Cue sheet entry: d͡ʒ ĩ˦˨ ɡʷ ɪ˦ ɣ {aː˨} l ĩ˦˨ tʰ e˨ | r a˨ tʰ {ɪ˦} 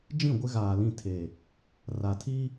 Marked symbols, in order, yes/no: yes, no

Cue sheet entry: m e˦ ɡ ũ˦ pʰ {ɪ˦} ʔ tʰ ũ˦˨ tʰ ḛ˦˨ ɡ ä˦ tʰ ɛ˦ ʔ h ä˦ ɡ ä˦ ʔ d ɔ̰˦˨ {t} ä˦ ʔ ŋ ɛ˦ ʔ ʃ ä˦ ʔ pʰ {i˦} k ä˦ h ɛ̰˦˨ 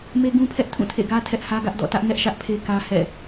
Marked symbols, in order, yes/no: no, yes, no

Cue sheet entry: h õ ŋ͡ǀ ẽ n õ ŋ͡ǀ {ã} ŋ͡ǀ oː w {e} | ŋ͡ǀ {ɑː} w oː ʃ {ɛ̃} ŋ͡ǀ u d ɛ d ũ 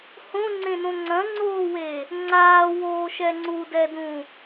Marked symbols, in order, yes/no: no, yes, no, no

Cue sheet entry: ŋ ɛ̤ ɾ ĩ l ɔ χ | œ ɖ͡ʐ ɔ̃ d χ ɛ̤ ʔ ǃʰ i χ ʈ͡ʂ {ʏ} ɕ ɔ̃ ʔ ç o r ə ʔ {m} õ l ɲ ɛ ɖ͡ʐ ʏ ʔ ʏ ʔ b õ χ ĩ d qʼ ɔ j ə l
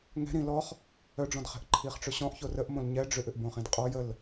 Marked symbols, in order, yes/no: yes, yes

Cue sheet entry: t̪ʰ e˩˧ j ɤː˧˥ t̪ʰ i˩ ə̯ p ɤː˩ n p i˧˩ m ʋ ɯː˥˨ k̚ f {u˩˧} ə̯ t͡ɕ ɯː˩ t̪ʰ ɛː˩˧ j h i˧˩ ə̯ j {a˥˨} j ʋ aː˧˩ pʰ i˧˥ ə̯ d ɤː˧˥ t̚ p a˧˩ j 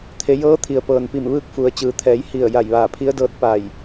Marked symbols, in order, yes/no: yes, no

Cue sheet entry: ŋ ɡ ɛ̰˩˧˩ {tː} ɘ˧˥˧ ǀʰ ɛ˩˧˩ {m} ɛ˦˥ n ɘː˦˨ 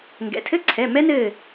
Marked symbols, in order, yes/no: no, yes

